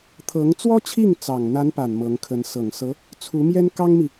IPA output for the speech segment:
t̪ʰɤ˧˥ŋ t͡swɔ˥t͡ɕʰi˥˩ŋ t͡sɑ˨˩ŋn̪a˧˥npa˨˩n mɤ˧˥ŋkʰə˧˥n sɤ˨˩ŋsɤ˧˥ | t͡sʰu˧˥mjɛ˥nkɑ˥ŋmi˨

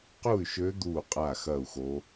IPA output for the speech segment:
qu˥˩y̯ʃø˧˥ d̪uː˥˩qʼa˥˩ xɐː˥˩u̯xo˧˥

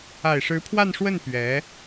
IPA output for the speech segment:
a˨˩ɪ̯ʂɻ̩˧˥pʰwa˥˧n ʂwə˥˩n pɥɛ˧˥

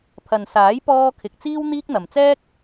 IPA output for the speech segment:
pʰɐ˨nsaː˨˥jpɔː˧ kʰɪ˨k̚t͡siː˥w n̪iː˥k̚n̪ɐ˨m t͡sɛː˥k̚

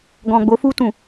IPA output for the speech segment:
ɡɔ̃˨ɡ͡bo˨˦fu˧tũ˨

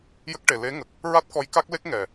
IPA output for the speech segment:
jə˦˥k̚ʈe˨˩ le˧˥ŋə˨˩k̚ | ɹa˦˥t̚kɔ˧˥jka˦˥k̚le˦˥k̚ ŋɛ˨˩

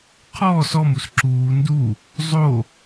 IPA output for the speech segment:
qʰɔːs ɔmus ǁuː ndu | zˤo

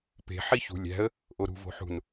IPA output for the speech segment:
pe̤ ħiçṳ lʲæ̤ə̯ | ʔoɾṳ vo̤ħṳn

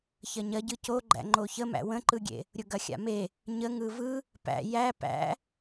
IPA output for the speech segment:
çɐɲɐɟɯ coɡ͡ǃæ̰ ŋ͡ǃoçəmæ̰ wə̃ǃɯɡʲḛ | ɾʲʊɡɐxʲa̰me | ɲəŋɯ vɯ | pæ̰ jæ pæ̰

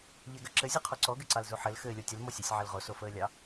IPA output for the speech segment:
ʎɛɡɐǁɘ zʲuqʰɔǀɔ ɡɘǀɑlzuħɘl xɘːlʲotʲəl mɔsʲəsʲ ʕɘlʁo sofəːlʲɑ

